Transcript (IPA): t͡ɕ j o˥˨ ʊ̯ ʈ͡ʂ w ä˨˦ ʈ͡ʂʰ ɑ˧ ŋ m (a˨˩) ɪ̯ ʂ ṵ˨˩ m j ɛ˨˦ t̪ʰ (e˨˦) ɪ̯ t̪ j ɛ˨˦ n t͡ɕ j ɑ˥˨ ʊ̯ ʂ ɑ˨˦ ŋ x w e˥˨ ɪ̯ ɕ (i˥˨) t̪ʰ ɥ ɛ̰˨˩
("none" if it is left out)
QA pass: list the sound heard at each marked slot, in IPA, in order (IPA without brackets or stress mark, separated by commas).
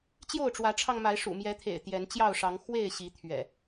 a˨˦, ḛ˨˩, i˨˦